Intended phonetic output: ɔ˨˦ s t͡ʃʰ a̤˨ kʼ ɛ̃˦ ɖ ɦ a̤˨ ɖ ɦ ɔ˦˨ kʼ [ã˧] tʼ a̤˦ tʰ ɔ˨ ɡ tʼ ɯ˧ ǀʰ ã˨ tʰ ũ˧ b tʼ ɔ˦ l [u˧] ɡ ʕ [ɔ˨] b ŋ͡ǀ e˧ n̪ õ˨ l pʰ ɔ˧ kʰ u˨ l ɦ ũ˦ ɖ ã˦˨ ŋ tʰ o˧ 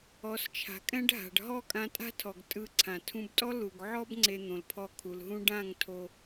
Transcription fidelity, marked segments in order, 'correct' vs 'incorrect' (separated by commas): correct, incorrect, incorrect